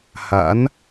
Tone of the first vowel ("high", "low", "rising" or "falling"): rising